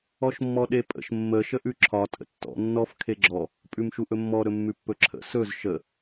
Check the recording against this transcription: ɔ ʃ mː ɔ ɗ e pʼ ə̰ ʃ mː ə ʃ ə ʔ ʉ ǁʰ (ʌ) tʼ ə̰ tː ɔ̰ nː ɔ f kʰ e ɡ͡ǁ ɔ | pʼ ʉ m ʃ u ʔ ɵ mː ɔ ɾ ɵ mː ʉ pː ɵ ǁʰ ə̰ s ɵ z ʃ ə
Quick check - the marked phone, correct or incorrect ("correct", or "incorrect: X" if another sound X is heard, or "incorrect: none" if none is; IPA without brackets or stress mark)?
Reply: incorrect: ɒ